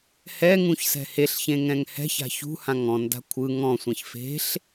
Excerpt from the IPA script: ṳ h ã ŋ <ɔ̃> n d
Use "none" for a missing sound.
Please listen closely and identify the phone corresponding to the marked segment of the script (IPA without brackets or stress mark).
ɔ̃